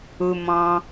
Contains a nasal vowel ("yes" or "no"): yes